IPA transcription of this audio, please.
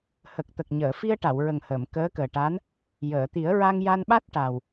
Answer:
hə˨˩k̚t̪ə˨˩k̚ ɲəː˨˩˨fi˧ə̯ʈa˨˩˨w ɹə˨˩ŋ həː˨˩˨m kəː˧˥kəː˨˩ʈaː˧˥n | jəː˨˩˨ t̪i˨˩˦ə̯ɹa˧ŋ ja˧nɓa˦˥t̚ ʈa˨˩w

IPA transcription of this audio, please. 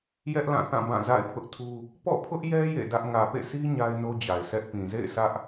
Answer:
jɛ˦ʔlã˦˨θã˦˨ bã˦˨za̰˦˨ɪ̯pʰʊ˦ʔtʰu˦ | pɔ̰˦˨pʰʊ˦ʔjɛ˦ jḛ˦˨dä˦ʔ ŋä˨pḛ˦˨si˦ ɲa˦ɪ̯no˦d͡ʑa˨ɪ̯sɛ˦ʔ pĩ˨zḛ˦˨ɪ̯ sä˦ʔ

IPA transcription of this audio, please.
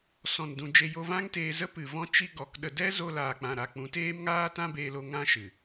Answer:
sɔ̃˨ndũ˨ d͡ʒe˧jo˧ vã˦ŋteː˧zə˦ pɨ˨vɔ̃˦ t͡ʃi˧ ɡɔ˨˦kɗə˧ dɛ˦ zo˧laː˨k͡pã˨ ɾa˨k͡pũ˨˦teː˦mŋaː˦ tã˦beː˧lo˧ ŋã˦ʃɨ˨

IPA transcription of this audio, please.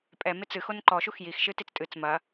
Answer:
pʼɛ met͡sɨ xonǃɔ ʃuxjix ʃɨtit͡stʼɨt͡s mɐ

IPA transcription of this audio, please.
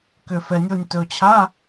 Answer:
kʏ˨ fɛ˨nʲo˦˨nʲ tɵ˨t͡ɕʰa˧˥˧

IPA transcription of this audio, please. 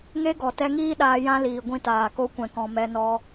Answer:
ŋe˦ɡɔ˨ tɛ˧ŋiː˦ ɗaː˧jã˦ liː˨ɡʷĩ˧taː˨ ko˧kʷɛ̃˨kɔ̃˨ mɛ˧nɔ˧

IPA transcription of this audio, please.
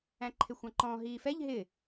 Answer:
æ̃ǃʰɪxʷɑ̃ǃɔ̃ ɦiːfɛʎ ɦɪ

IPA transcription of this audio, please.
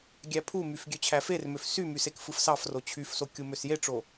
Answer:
ɡʲæpʰumyf ɡʲøt͡ɕʰæfermøf symys ekfɯfsɑfro t͡ɕʰyfso kʲumøsjeʈ͡ʂo

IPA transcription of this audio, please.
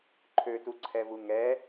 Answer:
ǃʰøtuǀʰɛvu ŋɛ

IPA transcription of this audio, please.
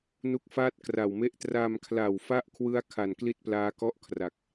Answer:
nu˦˥k̚faː˥˩t̚kra˨˩wme˥˩ʔ tra˧mkʰla˨˩wfa˥˩ʔkʰwɯ˦˥a̯ kʰa˨˩nkli˥˩t̚plaː˦˥kɔ˥˩ʔ kʰra˨˩k̚

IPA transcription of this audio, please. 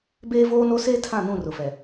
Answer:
beː˦voː˦no˦seː˦ tʰã˦˨nũ˦˨rʊ˨fɛ˨

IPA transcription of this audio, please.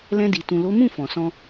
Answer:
lɛ̃˧di˨ tũ˨lo˨˦mũ˦˨ fɔ̃˨sɔ̃˧

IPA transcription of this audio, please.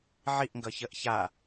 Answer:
ʕiʔŋɡʌçəʔ ça

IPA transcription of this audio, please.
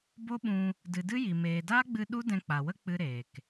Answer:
bo˦ɓũ˧ | dɨ˨dɨ˦ji˨ meː˨daː˦ɡ͡bɨ˧ ɗu˦dɛ̃˧k͡pa˨wə˦ k͡pɨ˦ɾeː˨k

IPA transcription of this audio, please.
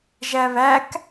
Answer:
ʒæβæk

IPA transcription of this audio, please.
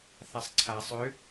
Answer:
θasˤǀʰa sˤø

